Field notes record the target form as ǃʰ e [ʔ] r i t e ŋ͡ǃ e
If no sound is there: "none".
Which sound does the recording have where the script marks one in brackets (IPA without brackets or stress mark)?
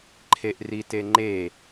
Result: ʔ